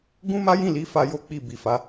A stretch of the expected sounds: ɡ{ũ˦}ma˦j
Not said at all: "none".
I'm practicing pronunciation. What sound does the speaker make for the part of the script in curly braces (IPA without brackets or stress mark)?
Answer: ũ˦